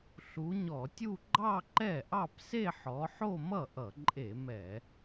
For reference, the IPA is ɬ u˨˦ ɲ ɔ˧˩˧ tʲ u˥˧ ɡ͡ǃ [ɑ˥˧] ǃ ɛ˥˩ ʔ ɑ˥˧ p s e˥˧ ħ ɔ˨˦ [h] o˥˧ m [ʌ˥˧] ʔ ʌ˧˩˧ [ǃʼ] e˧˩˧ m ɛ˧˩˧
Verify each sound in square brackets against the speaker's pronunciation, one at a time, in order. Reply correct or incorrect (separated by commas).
correct, incorrect, incorrect, correct